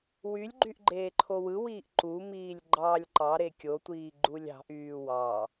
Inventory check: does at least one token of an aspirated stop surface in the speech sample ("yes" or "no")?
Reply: yes